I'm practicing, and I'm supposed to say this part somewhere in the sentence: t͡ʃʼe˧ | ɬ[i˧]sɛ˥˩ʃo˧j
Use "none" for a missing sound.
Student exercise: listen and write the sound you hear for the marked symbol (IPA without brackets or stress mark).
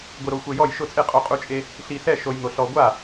i˧